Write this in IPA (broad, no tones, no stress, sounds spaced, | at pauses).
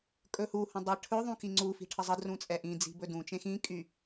kʼ ɵ h u h õ dˤ ɯ ʈʰ ɵ ðˤ ũ k i ŋ͡ǀ u f i̤ ʈʰ ə zˤ ə d r ũ t͡sʼ ɛ ʔ ĩ d͡z i̤ b ɵ d ũ t͡ʃ ẽ x ĩ kʼ y